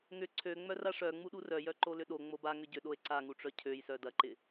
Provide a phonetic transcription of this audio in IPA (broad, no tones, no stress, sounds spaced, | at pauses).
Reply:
ŋ ʏ ǀʰ ø ŋ͡m œ r a ʂ œ ŋ͡m u ɗ u r œ j œ ǃ o l ʏ ɗ o ŋ͡m o b a ŋ ʏ ɟ ʏ ɗ o e̯ ǀ a ŋ u ʈ͡ʂ œ cʰ ø j s œ d ɐ ǃ ɪ